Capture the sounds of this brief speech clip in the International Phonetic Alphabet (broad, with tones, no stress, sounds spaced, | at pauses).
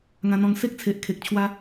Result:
ŋ ã˧ n̪ ɔ̃˧ ŋ s e˦ k̚ t͡sʰ e˨ ʔ kʰ e˨ k̚ t͡ɕʰ w a˧